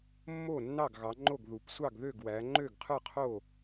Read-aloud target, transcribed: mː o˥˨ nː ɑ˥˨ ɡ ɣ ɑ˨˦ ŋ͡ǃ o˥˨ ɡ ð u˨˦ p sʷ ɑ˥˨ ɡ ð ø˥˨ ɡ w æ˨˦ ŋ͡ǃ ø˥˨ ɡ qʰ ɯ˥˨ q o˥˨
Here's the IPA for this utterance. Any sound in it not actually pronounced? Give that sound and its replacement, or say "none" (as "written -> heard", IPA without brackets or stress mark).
q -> qʰ